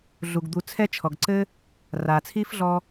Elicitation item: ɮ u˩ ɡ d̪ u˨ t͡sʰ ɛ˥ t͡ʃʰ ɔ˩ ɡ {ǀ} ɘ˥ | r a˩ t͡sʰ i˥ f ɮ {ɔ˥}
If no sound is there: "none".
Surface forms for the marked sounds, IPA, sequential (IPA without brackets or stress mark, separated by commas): ǀ, ɔ˥